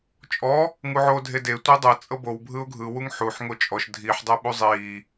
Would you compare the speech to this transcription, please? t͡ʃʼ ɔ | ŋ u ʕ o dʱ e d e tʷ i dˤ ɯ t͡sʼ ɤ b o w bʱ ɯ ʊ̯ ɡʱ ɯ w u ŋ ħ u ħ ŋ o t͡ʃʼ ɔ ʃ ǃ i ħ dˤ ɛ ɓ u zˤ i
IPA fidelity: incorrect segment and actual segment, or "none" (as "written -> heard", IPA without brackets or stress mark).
ǃ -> dʱ